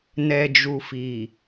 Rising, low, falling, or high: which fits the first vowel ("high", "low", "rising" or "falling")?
low